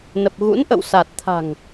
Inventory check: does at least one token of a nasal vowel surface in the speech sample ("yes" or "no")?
no